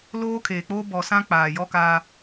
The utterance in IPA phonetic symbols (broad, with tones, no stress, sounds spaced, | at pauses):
l oː˦ kʰ eː˨ k͡p oː˦ b ɔ˨ s ã˦ k͡p aː˨ j ɔ˦ k aː˦